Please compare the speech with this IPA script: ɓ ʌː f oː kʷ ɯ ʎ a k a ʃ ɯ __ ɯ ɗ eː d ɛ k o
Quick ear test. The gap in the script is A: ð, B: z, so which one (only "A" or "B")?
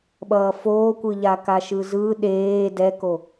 B